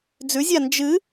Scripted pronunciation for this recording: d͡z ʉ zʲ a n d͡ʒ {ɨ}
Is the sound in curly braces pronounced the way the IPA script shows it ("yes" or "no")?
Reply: yes